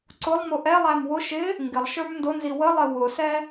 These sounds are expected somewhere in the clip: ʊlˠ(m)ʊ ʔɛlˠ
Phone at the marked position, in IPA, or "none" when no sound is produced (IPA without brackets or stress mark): m